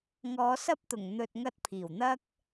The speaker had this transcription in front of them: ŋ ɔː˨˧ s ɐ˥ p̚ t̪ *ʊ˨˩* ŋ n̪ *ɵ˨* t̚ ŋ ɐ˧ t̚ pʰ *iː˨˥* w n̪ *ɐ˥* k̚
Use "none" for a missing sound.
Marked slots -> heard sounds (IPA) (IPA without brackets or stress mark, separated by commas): ʊ˨˩, ɵ˨, iː˨˩, ɐ˥